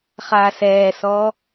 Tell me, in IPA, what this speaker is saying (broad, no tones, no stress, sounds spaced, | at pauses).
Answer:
χ aː s ɛː s ɔː